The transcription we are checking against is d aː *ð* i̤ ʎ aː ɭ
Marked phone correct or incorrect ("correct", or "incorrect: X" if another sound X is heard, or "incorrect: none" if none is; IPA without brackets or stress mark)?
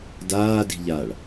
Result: incorrect: d